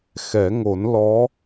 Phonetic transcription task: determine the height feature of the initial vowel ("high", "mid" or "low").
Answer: mid